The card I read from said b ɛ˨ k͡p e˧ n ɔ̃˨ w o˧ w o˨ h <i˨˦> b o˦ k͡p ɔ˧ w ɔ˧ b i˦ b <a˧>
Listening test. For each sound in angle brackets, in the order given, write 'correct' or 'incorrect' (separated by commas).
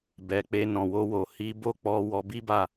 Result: correct, incorrect